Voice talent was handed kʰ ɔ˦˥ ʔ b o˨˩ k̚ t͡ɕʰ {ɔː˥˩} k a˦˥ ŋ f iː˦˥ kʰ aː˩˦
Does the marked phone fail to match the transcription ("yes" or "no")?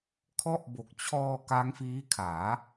yes